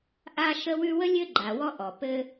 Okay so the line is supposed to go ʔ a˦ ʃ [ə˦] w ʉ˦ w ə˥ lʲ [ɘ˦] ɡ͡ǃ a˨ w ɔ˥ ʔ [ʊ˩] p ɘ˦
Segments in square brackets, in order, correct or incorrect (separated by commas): correct, correct, incorrect